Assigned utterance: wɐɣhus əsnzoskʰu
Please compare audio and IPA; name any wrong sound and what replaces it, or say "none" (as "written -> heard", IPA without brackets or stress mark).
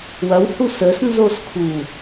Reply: ɣ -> w